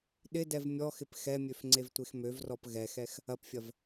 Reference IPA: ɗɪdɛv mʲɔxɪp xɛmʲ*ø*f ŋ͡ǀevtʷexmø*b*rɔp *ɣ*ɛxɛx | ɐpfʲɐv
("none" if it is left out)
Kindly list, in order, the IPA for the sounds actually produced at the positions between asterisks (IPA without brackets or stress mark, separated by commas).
ø, v, ɣ